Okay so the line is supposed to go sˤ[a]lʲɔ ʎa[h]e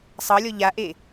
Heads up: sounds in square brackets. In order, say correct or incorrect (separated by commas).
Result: incorrect, incorrect